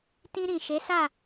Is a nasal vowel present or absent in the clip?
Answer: present